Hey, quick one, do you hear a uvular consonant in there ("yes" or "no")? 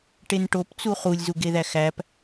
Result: yes